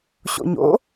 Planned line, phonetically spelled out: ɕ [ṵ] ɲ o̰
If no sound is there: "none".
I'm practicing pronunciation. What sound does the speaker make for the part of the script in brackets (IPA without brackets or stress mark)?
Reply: o̰